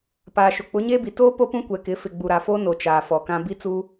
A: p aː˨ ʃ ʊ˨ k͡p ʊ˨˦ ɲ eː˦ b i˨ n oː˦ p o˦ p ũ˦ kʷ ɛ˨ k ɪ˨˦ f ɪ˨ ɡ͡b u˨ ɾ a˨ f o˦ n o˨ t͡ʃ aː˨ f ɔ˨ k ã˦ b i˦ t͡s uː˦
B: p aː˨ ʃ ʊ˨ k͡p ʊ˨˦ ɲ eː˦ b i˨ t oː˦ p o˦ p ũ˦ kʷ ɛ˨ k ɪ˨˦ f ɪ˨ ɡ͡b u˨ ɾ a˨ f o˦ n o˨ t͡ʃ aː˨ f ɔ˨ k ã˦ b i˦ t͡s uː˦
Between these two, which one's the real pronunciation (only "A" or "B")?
B